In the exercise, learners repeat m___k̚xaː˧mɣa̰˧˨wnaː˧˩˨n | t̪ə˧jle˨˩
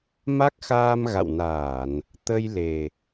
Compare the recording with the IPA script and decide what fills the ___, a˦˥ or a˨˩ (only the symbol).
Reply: a˦˥